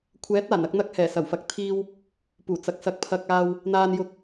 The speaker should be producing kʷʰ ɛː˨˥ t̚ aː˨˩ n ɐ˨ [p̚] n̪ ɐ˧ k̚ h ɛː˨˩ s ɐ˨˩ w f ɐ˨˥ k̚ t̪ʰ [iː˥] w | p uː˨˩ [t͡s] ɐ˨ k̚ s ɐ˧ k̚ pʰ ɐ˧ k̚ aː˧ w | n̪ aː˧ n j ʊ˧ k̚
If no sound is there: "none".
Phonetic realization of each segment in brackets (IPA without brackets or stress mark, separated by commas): k̚, iː˧, t͡s